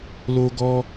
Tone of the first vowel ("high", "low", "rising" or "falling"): high